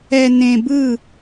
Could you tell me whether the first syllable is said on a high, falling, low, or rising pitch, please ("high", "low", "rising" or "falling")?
low